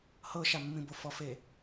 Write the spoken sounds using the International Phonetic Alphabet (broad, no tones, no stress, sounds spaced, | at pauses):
h ɤ ʃ a mː ĩ b o f ɔ f e